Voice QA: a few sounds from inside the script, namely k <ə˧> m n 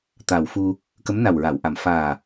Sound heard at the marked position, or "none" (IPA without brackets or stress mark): ə˧˥